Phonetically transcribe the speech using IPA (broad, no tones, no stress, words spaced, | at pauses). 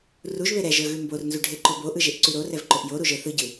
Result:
ruʒβe ɾɛʒə˞ɣʉ mbornzuɖʱeǃob oʔɯʒeʔǀʉ ɾorɛvǃoʔ joɾuʒə˞ θɯɟɯ